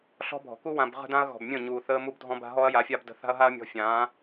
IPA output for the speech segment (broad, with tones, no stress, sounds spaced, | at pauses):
ɬ ɔ̤˦ bʱ ɔ̤˨ k u˦ w ã˨ b ʁ ə̤˦ d ã˦ ɐ̯ ɣ ɔ̤˨ b mʲ ə̃˦˨ ɲ uː˨ θ əː˦ m u˦ b dʱ ɔ̃˦ b a̤˧ ɦ ɔ˦ ɐ̯ j a˨˦ fʲ a˦ b d ə̤˧ θ a̤˦ ɐ̯ ɦ a˦ ɐ̯ mʲ ɔ̤˧ fʲ ãː˨˦